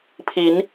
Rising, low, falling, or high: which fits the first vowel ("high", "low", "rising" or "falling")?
rising